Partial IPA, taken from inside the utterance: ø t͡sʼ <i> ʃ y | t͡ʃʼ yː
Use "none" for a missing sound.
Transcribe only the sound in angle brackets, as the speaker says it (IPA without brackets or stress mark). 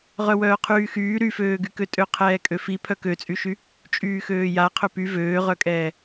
y